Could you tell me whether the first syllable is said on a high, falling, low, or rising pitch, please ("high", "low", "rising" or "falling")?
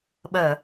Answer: low